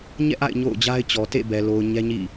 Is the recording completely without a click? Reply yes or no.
yes